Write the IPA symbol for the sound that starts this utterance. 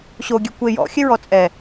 ɕ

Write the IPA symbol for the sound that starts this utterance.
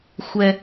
xʷ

